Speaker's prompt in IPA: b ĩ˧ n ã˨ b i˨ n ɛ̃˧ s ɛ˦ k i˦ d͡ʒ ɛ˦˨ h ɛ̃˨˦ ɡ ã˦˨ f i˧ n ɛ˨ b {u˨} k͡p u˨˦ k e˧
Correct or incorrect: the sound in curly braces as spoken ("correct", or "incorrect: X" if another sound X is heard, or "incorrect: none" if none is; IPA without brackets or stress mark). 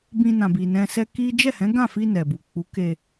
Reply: correct